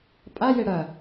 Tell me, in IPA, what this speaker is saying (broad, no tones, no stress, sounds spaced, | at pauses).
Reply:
pʼ a j e ɽ ɐ